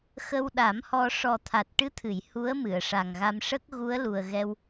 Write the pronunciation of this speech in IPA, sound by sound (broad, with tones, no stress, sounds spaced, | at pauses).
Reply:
x ə˧ w ɗ a˨˩˦ m h ɔ˧ ʂ ɔ˨˩ t̪ʰ a˨˩ t̚ ʈ ɨ˧˥ t̪ʰ ɨ˨˩˨ j h u˧˥ ə̯ m ɨ˨˩˨ ə̯ ʂ a˨˩ ŋ ɣ a˧ m ʂ ə˦˥ k̚ ɣ u˧˥ ə̯ l u˨˩ ə̯ ɣ ɛ˧ w